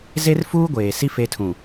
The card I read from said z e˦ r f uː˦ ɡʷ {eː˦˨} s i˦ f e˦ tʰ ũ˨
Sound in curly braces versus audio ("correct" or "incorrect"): incorrect